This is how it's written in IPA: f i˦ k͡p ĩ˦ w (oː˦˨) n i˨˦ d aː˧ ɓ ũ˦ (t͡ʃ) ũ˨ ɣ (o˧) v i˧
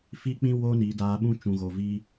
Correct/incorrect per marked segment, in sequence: incorrect: oː˦, correct, incorrect: o˨

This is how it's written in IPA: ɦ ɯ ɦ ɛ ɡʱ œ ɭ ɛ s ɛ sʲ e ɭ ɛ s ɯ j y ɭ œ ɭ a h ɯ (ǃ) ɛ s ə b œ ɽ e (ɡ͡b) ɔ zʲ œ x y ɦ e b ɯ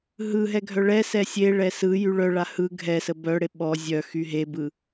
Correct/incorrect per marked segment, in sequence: incorrect: ɡʱ, incorrect: ɓ

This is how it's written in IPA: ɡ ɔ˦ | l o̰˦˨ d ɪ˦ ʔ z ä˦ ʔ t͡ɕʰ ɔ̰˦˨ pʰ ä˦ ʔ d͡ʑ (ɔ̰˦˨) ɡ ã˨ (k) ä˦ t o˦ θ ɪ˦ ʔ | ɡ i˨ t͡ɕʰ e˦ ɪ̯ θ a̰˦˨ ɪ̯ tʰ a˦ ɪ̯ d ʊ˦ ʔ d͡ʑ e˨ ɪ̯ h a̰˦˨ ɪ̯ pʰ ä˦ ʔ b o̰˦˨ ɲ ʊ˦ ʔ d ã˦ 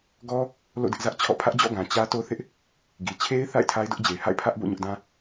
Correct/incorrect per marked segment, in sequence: correct, incorrect: t͡ɕ

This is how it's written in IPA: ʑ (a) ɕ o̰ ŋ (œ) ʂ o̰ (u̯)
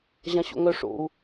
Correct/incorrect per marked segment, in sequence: incorrect: ã, correct, correct

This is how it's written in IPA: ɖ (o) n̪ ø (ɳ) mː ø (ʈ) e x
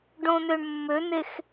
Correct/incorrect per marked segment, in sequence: incorrect: õ, correct, incorrect: n̪

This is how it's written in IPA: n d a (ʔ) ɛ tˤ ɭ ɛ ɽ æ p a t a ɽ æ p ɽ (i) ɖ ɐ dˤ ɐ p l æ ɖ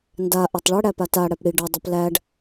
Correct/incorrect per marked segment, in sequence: correct, correct

